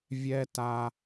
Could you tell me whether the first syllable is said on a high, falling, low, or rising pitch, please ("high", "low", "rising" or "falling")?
high